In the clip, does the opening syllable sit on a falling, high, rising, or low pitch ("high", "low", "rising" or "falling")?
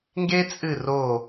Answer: high